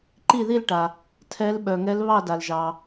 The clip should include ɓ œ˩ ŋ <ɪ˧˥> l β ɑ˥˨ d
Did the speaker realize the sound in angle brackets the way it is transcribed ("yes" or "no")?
no